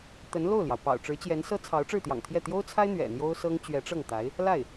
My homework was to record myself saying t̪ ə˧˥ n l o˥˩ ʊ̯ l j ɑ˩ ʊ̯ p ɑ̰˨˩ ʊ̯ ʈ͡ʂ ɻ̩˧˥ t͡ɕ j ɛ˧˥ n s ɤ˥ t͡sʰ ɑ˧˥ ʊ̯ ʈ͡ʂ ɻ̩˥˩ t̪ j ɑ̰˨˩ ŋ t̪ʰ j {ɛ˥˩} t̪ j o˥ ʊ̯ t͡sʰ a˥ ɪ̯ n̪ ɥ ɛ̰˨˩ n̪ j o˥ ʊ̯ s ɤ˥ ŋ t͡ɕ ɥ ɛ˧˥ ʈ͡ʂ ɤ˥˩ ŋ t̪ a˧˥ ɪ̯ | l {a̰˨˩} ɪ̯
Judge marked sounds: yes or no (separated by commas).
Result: yes, no